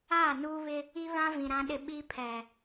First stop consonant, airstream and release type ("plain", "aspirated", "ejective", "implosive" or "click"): implosive